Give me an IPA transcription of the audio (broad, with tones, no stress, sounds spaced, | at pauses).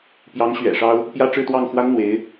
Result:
p j ɑ˧˥ ŋ ɕ ɥ ɛ̰˨˩ ʂ ɑ˥ ʊ̯ | p j ä˥ ʈ͡ʂ ɻ̩˥˧ t̪ w ɑ˥˩ ŋ x w a˥ n n̪ w e˧˥ ɪ̯